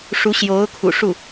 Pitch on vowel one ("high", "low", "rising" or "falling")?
rising